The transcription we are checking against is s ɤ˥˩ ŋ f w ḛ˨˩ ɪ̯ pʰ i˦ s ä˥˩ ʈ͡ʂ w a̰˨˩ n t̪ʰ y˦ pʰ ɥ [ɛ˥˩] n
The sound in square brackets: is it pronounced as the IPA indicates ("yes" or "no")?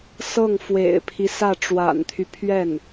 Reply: yes